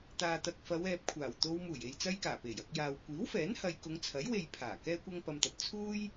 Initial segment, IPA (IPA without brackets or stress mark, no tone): t̪